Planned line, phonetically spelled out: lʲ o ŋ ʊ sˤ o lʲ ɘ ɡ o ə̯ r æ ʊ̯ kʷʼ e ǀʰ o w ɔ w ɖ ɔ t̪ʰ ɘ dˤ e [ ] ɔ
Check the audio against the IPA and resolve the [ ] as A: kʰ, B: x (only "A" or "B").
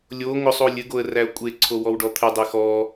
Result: B